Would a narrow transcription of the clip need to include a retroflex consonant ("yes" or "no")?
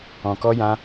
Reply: no